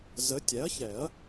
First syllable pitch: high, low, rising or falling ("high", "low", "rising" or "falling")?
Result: rising